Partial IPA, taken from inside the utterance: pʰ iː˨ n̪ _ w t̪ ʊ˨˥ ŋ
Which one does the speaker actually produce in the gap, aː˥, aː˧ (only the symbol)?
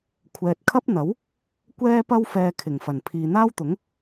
aː˥